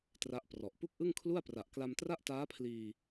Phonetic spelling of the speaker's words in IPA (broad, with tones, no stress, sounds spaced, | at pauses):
t r a˦˥ ʔ p r ɔ˨˩ ʔ p u˥˩ k̚ ʔ ɯ˥˩ ŋ kʰ l u˥˩ a̯ p r a˨˩ ʔ k l a˧ m t r a˥˩ ʔ t aː˦˥ pʰ l iː˧